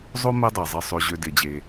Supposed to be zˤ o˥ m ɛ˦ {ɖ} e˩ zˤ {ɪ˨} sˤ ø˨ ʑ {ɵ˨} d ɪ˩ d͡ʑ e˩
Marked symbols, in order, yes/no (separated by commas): no, yes, no